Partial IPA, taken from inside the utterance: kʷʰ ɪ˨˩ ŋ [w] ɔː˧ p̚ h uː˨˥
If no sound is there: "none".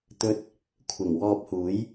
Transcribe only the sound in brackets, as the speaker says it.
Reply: w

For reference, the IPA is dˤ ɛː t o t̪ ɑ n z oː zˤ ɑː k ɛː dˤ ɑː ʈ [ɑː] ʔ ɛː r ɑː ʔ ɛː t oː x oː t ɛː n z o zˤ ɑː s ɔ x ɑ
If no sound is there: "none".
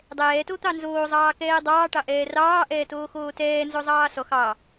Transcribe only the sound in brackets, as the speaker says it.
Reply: ɑ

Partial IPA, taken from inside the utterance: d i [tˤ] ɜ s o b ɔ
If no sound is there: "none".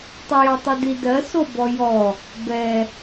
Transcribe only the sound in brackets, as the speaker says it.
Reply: d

